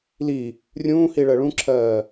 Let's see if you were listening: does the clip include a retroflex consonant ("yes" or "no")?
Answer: yes